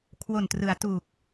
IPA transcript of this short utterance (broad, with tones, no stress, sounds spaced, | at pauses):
kʰ w o˨˩ n t r ɯ˩˦ a̯ t u˨˩ k̚